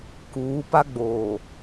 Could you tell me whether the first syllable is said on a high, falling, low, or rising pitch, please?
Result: rising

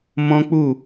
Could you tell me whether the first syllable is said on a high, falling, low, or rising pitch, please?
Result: high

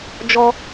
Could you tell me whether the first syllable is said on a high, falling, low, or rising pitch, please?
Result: high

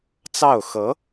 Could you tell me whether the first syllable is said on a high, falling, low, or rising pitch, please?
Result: falling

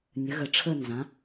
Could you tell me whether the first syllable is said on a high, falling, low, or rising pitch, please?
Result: rising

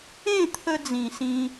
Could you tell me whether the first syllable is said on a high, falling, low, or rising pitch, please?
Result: falling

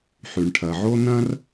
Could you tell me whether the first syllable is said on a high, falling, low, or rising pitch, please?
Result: low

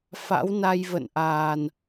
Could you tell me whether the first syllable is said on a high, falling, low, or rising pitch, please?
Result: rising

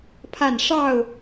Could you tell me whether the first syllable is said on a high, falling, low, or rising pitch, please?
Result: falling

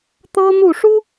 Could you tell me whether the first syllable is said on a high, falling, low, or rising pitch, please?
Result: high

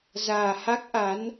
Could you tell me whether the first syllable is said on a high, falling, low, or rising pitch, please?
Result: low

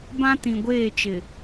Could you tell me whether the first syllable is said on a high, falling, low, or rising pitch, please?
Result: high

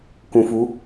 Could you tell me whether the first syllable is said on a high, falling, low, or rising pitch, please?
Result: low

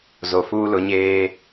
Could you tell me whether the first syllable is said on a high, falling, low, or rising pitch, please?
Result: low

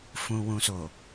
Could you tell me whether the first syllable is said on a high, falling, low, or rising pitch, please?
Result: low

